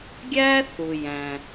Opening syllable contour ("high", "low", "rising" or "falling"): high